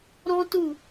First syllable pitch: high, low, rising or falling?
high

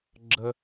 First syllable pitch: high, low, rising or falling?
high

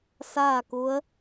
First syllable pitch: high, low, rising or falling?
falling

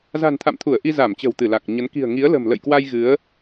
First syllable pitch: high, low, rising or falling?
low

